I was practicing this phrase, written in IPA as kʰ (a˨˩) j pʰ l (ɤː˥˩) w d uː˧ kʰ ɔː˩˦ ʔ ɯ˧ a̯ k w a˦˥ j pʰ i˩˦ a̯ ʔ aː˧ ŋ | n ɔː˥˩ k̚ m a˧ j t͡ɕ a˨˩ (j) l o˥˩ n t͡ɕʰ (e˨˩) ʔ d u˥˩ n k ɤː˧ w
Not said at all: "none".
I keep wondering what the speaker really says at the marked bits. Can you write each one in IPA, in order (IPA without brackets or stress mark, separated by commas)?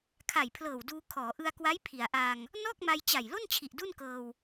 a˨˩, ɤː˨˩, j, i˨˩